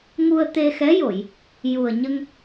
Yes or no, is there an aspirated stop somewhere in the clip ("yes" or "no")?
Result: no